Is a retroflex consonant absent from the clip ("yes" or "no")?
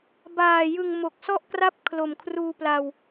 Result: yes